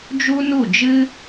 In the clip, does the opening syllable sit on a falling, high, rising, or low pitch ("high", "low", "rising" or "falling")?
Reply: high